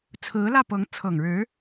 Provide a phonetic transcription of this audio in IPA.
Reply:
t͡sʰɹ̩˧˥lä˥˩pɤ˧˥ŋ t͡sʰɤ˨˩ŋɻɻ̩˧˥

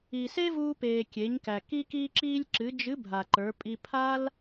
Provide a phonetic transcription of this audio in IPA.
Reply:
i˩se˥vuː˧peː˩ kʲe˩˧ɲkæ˩ ki˧kiː˧ǁiː˧lʲǁɨ˩˧ d͡ʒɨ˧˥bʱa˩ ǃə˞˩˧pʼi˧ pʰa˥l

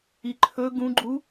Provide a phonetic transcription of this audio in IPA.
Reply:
iǃʰɵ ɡũɡ͡ǃu

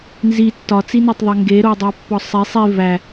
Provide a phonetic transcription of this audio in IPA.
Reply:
nzi tːɒt͡sinɒtˤðˤe ŋɡeɾodˤæpːɒ sˤe sˤi væ

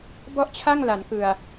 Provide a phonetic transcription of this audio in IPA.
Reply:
bɔ˥˩ʔt͡ɕʰa˥˩ŋ la˩˦nkɯ˨˩a̯

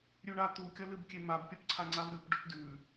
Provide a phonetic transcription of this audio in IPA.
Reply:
ɾʲʉɳat̪u kʲɐlɨbkʲemab pʲɐpǀʰaŋ͡ǀavɾʲup ɖɵpdʉ

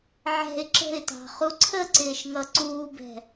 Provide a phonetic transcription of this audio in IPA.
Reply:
ʕɛ̤ɪ̯ ǁə̤ɪ̯tɑ̤χu ǀʰəǀɪːʃŋʌ ǀuːbɛ̤

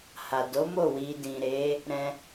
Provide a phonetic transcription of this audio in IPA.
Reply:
ha˨do˨˦ mo˦˨ wi˨dĩ˨ ɾe˨˦ | ɾɛ̃˧

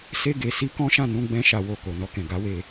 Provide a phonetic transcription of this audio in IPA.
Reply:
se˧ɡe˨ si˧kɔ̃˦ʃã˦˨nũ˧ ɡ͡bɛ̃˦ʃa˧wo˧ ko˨nɔ˧kɛ̃˨ ɡa˨˦we˧

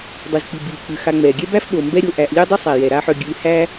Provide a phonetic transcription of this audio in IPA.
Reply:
dˤʉ˩zk͡pi˩ biː˩k͡pʉ˩ xa˨ŋ͡mɛː˩ɡʲɛ˥bæ˥f ɓo˩ mbɛ˥ɾʲo˨ʔæ˨ʔ lʲœ˥dˤɪ˥ sˤæ˩jɛ˩ɾa˦ħœ˨ ɡʲʉ˨ hæ˥

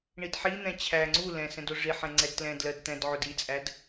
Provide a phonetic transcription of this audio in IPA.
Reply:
ɳidħin̪ɛ̃ t͡ɕʰæ ŋ͡ǀu lɛ̃ sɛ̃dʊʐiħɛ̃ ŋ͡ǀɛdtlɛ̃dlɜd t̪ɛ̃dʕʊd it͡sʼæd

